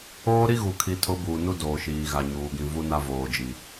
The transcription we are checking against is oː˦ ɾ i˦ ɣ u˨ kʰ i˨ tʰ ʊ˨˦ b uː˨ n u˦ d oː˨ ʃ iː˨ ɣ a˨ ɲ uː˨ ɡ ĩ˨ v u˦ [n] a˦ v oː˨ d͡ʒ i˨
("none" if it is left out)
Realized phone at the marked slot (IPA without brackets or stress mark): n